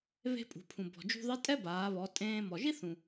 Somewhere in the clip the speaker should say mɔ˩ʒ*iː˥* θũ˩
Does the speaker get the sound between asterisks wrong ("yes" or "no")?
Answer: yes